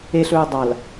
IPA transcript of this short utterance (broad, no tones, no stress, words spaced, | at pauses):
eɬɵː dˤal